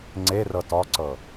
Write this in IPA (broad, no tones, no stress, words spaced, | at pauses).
ŋ͡ǀe rɤtɔǀɤ